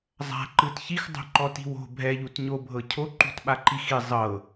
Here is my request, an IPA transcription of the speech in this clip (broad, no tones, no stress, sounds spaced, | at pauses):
zˤ a̤ ǃ ɯ t ç i x dˤ ṳ ǃ ɔ t i̤ w o̤ bʱ ɛ ʎ u t ɲ o bʱ ɤ cʰ o ǃ ṳ t ɓ a ǃ i x i zˤ ɤ